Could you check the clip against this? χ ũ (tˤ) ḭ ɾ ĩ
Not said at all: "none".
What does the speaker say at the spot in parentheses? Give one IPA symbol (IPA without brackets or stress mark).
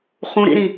ɾ